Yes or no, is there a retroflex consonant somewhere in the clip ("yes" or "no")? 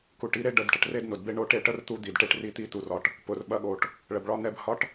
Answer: yes